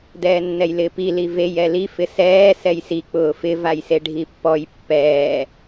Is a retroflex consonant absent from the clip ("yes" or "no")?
no